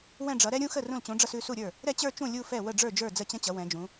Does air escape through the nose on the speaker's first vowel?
yes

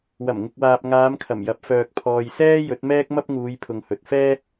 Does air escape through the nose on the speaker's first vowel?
no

